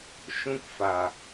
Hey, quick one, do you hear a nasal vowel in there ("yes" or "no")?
yes